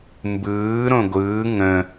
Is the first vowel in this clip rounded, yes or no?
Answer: no